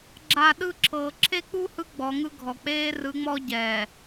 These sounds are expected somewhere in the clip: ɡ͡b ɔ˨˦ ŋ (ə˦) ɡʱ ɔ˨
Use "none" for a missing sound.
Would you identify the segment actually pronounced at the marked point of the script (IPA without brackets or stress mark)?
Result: ɯ˦